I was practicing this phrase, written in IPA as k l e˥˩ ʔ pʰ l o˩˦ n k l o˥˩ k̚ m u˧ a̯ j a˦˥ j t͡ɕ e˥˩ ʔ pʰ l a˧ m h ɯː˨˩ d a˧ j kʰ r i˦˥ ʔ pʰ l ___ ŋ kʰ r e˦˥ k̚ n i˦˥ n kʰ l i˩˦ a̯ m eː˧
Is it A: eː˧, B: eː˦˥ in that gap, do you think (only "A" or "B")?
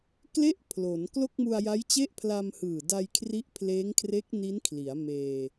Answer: B